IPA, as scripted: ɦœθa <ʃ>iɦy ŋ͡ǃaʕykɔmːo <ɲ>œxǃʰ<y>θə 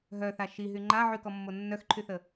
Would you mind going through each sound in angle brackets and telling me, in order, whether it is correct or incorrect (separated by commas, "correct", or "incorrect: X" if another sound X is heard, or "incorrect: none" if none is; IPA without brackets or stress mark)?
correct, incorrect: nː, correct